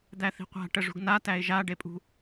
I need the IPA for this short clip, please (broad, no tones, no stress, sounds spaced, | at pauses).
d̪ æ θ i̤ qʷ a̤ ʈ ə ʐ ṳ ɡ n a t æ ɪ̯ ʒ a ɖ e pʼ ṳ